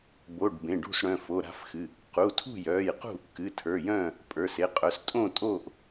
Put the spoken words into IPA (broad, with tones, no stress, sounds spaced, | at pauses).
b o˩˧˩ ɖ b ẽ˩˧˩ ɖ ṳ˥˨ s ɽ œ̃˩˧˩ f o˩˧˩ ɾ a̤˥˨ f x ɨ˩˧˩ | q u˩˧˩ tʰ ṳ˥˨ j œː˩˧˩ j q ṳ˥˨ | k ɨ˩˧˩ tʰ ə˞˩˧˩ j œ̃ː˥˨ | pʼ ə˞˩˧˩ s e˩˧˩ qʼ œ˩˧˩ s tʼ õ˥˨ tʼ oː˥˨ ʔ